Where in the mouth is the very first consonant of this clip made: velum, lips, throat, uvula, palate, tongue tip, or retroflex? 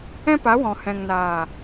lips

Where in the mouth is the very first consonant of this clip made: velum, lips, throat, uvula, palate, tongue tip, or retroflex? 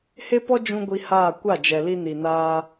throat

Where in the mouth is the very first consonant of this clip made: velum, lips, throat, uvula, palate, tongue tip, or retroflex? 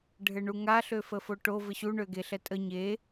retroflex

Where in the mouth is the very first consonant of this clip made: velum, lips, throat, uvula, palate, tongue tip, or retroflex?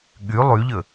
velum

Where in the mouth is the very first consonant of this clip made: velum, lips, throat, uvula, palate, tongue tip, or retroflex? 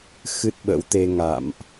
velum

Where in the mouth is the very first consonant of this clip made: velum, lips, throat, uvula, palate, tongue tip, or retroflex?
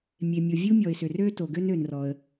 lips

